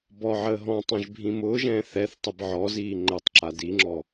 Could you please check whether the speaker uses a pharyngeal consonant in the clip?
yes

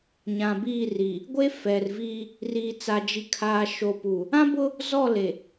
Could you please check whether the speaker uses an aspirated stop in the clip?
yes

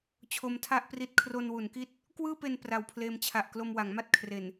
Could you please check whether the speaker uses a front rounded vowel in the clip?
no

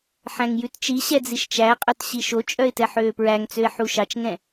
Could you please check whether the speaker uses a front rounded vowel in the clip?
yes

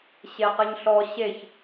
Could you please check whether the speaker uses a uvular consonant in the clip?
yes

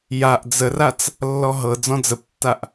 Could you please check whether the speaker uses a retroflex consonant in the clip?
no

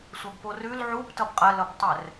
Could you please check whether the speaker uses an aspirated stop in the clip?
no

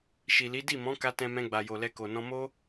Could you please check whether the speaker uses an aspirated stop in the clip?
no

